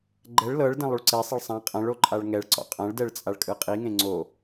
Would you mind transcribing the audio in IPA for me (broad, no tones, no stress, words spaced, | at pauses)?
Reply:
ɡ͡ǃɛɭ lɤɭ dẽlˠuɭǀesˤɛɭ sˤã qʼãɭo ǃʼaɭŋɛɭǀɔ̰ qʼãɭdɛɭ t͡sʼaɭkʼɯqʼiŋẽ ŋ͡ǀo